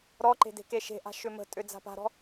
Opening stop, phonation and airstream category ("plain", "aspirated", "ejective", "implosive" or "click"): click